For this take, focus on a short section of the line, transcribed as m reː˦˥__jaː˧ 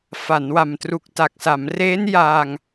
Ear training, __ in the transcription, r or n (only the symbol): n